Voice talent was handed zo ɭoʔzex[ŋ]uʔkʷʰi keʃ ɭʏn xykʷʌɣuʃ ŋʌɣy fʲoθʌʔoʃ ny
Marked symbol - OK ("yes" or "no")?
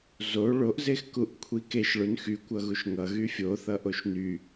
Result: no